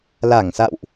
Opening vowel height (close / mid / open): open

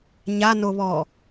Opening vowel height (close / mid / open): open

